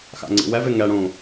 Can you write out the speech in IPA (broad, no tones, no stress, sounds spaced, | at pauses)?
x a̰ ŋ͡ǀ ḭ w ɛ v ɪ ŋ ɛ ɽ ũ